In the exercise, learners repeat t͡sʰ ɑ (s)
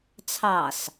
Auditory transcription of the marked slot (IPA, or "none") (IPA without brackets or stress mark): s